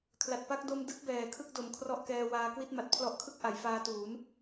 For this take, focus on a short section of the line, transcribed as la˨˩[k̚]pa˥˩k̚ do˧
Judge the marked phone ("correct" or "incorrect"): incorrect